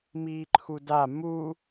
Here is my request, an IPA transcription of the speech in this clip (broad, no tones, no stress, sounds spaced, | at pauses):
m iː ǃʰ u d a m u